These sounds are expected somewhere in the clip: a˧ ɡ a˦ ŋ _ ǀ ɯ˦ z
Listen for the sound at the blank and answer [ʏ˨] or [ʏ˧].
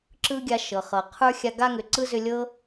ʏ˨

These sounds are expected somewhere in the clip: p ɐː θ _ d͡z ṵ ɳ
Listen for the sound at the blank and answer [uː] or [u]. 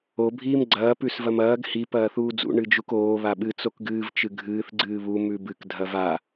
uː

